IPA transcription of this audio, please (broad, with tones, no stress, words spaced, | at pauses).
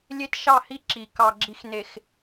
lʲe˦tʃɑ˦˨hi˦ ǁi˨ kɑ˨ɡ͡ǁi˨xne˨x